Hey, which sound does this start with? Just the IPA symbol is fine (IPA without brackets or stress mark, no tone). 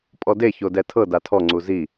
pʼ